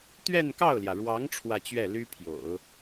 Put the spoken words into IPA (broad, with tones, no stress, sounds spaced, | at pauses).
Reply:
t̪ ɥ ɛ˥˧ n k ɑ˥˩ ʊ̯ l j ä˩ ɻ w ɑ˧˥ ŋ ʈ͡ʂʰ w ä˥˧ t͡ɕ ɥ ɛ˥˩ l y˥ pʰ j o̰˨˩˦ ʊ̯